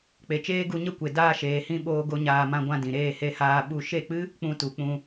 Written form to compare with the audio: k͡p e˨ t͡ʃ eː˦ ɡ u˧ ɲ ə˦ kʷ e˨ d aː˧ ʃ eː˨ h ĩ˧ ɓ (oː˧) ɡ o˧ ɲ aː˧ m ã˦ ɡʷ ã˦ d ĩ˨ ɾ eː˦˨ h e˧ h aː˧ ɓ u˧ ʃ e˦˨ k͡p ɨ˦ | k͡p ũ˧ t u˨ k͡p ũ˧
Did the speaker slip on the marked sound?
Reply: no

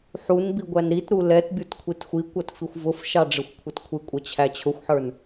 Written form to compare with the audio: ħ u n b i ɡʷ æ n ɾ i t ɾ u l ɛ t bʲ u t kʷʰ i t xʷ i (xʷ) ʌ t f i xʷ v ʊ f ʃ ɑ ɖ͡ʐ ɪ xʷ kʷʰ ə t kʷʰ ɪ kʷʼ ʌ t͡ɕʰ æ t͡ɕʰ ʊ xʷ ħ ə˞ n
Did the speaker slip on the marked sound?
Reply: yes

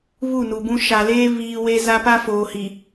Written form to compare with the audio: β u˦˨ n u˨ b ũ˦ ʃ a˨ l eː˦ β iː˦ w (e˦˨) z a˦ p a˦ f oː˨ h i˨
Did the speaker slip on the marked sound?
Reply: yes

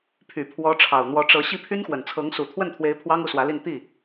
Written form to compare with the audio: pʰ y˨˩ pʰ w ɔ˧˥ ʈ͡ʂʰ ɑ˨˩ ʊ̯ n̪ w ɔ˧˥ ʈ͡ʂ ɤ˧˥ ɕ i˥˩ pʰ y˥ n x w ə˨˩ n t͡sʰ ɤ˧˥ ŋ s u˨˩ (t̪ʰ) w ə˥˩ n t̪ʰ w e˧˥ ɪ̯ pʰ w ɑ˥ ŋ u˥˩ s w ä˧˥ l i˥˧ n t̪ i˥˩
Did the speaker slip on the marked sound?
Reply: no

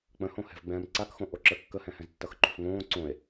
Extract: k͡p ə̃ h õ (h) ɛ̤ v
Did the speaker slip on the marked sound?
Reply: no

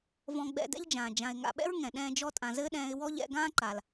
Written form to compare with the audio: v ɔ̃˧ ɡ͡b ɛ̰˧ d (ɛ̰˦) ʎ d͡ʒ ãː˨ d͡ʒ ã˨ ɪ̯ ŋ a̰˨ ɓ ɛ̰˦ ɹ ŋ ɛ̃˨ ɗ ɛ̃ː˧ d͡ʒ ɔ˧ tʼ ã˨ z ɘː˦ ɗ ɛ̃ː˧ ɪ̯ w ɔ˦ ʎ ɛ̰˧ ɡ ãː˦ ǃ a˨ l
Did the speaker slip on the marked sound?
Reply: no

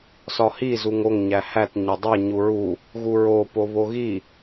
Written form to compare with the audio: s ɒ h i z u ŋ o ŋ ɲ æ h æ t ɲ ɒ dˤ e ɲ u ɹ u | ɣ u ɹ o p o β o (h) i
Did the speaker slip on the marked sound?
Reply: yes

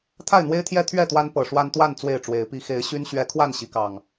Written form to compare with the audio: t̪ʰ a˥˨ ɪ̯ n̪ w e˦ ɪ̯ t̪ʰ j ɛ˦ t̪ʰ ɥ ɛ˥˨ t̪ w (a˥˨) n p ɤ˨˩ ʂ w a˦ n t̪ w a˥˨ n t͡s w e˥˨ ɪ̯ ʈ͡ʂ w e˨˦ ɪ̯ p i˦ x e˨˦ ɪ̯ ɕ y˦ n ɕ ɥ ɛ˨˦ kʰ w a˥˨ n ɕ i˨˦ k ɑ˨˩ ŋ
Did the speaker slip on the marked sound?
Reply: yes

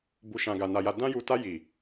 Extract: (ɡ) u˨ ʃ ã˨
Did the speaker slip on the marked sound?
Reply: yes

